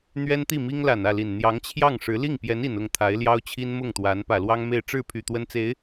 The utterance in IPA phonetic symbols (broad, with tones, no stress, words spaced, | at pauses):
n̪ɥɛ˥nt̪i˥˩mi˥ŋ la˨˩nä˥˩li˨˩n n̪jɑ˧˥ŋt͡ɕʰjɑ˥˩ŋʂɻ̩˧˥ li˥˩ŋpjɛ˧˥ni˨˩n ʊ˥˩ŋt̪ʰa˧˥ɪ̯ljɑ˥ʊ̯t͡ɕʰi˥n mʊ˥˩ŋt̪wa˧˥n pä˨˩lwɑ˥ŋme˥˧ɪ̯ ʈ͡ʂɻ̩˥˩pʰy˨˩ t̪wə˥nt͡se˧˥ɪ̯